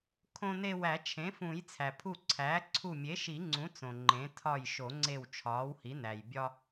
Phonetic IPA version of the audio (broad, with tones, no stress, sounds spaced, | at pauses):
kʰ õ˧ n e˧ w æ˨˩˦ t͡ʃʰ ẽ˩˥ f ũ˨˩˦ j t͡sʰ æ˩ pʰ u˧˩ ǀʰ æː˩˥ ǀʰ u˧˩ mʲ e˩˥ ʃ i˨˩˦ ŋ͡ǀ ũ˩˥ t͡s õ˩ ŋ͡ǃ ẽ˩˥ tʰ ɒ˧˩ j ʃ o˨˩˦ ŋ͡ǀ e˧˩ w t͡ʃʰ ɒː˩˥ w h i˩˥ n æ˩ j bʲ ɒ˧